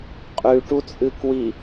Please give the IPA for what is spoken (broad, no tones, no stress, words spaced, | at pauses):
qʼʉʈut͡sʼɨ kwi